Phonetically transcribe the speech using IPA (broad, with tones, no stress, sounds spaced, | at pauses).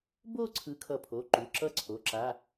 b o˥˧ ǀʰ ɯ˨˥ kʰ ʌ˧˩ pʰ o˩˧˩ ǃ u˩˧˩ ǁ ʌ˥˧ ǀʰ o˩˧˩ ǁ a˩˧˩